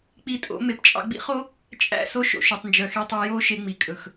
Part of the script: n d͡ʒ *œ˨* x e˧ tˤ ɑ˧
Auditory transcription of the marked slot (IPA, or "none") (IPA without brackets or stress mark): œ˨